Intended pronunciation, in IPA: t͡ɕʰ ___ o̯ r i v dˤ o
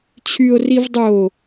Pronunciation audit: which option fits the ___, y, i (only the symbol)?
y